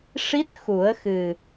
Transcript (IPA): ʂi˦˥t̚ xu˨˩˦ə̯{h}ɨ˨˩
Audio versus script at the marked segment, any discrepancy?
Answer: yes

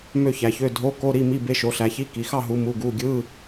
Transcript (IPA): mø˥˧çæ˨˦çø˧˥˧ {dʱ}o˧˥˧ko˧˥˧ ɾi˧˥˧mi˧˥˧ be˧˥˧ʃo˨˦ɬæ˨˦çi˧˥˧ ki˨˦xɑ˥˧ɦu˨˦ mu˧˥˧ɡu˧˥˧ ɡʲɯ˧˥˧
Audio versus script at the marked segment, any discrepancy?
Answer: no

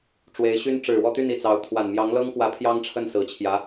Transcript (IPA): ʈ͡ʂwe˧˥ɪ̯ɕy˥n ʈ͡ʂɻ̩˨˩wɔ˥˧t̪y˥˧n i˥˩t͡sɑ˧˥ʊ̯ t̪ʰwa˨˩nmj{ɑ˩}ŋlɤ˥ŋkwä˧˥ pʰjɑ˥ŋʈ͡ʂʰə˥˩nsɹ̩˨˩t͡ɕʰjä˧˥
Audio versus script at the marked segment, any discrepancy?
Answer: yes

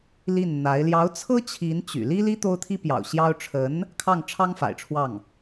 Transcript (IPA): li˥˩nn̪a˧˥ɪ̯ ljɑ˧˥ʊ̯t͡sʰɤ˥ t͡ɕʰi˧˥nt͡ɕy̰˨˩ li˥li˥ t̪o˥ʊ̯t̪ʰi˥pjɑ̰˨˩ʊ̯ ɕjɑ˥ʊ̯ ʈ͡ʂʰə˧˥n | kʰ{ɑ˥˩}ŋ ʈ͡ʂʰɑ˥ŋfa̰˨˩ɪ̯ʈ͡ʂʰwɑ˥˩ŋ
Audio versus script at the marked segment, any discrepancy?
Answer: no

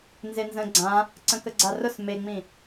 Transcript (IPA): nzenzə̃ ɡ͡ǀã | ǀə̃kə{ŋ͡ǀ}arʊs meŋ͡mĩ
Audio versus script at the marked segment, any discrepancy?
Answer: yes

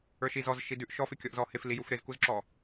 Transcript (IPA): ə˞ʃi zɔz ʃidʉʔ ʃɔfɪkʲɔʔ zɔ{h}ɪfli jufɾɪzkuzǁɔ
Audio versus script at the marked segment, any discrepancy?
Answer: no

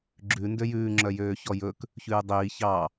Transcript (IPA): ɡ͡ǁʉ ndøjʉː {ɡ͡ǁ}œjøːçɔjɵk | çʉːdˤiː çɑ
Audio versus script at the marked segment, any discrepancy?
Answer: yes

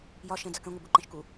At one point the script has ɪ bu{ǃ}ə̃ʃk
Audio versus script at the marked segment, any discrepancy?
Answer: no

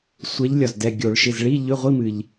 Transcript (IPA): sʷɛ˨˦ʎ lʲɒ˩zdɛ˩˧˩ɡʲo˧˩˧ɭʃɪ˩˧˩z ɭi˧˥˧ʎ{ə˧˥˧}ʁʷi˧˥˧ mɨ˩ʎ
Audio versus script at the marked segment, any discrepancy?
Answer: yes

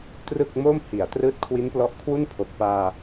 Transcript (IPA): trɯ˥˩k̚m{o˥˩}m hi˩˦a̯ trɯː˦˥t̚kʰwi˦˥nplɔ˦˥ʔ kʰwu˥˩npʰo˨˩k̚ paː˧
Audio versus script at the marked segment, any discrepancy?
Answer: no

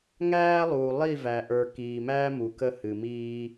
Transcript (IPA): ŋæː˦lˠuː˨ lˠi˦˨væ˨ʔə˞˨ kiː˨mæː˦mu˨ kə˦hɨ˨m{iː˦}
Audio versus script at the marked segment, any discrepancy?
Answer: no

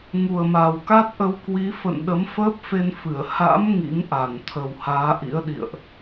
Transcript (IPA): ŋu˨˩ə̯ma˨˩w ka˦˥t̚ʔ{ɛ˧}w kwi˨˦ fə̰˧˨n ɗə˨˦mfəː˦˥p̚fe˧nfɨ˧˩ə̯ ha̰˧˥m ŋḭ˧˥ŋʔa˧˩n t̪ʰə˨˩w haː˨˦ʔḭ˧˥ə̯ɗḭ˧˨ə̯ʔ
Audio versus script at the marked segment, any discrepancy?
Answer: yes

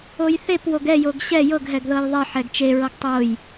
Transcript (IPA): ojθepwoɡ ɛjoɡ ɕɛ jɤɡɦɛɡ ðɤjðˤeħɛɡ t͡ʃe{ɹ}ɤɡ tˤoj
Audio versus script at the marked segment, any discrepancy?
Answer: no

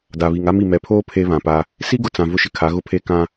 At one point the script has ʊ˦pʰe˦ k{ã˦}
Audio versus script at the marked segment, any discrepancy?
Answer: no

